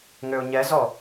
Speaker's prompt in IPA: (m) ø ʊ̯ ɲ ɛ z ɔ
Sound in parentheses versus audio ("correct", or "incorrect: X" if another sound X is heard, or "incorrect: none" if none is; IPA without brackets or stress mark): incorrect: ŋ